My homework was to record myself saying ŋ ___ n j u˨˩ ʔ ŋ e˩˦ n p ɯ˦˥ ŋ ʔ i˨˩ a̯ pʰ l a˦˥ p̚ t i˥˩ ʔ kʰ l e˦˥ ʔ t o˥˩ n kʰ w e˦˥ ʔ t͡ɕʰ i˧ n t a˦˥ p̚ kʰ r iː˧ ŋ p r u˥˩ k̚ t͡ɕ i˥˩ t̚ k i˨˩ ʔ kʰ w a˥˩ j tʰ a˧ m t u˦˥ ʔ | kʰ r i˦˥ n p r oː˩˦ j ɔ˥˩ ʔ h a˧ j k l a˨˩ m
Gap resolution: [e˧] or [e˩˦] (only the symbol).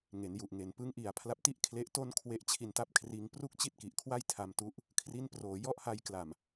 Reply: e˩˦